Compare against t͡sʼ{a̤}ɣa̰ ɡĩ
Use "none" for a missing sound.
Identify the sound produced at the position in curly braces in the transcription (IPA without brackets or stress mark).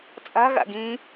a̤